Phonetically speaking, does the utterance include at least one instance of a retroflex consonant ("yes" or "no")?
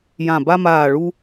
yes